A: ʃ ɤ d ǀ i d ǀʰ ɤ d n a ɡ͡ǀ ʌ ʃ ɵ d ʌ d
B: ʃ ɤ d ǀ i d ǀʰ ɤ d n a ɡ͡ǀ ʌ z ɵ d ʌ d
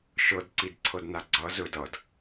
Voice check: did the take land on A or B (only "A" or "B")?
B